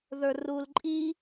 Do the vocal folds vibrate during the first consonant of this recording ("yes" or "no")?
yes